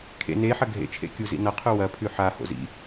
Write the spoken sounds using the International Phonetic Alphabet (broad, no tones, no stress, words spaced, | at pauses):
kʰḛ ne ħɐɡʱḛ t͡ʃʰḛkʲuzḭnɐ qʰʉwɐ pʰʉħa ho̰zḭ